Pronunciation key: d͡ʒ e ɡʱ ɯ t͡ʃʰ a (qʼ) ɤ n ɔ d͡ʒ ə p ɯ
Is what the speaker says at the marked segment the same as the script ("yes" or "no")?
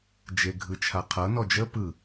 no